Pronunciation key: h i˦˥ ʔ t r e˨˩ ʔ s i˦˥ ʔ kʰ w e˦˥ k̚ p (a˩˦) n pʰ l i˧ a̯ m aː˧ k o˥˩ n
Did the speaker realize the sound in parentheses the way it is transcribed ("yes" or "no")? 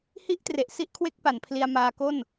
yes